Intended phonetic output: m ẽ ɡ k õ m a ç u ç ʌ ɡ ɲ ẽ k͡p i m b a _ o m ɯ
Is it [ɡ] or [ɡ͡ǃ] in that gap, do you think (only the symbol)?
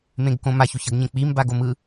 ɡ